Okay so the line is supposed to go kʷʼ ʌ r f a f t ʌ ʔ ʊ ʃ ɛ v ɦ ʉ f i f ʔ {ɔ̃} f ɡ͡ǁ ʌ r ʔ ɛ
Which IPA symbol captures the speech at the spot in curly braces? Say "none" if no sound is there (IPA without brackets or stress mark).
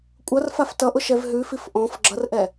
ɔ̃